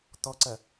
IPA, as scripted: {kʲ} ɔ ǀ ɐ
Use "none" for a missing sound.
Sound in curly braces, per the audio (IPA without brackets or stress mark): t̪